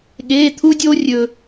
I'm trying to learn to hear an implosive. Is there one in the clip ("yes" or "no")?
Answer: yes